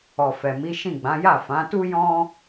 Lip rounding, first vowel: rounded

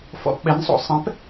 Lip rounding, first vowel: rounded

